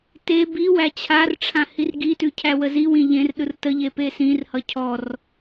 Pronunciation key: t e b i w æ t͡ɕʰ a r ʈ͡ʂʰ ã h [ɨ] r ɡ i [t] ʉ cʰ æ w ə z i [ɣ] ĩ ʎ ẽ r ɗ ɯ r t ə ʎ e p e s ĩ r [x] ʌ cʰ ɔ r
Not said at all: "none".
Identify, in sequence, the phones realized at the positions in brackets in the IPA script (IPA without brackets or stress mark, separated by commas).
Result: i, t, w, h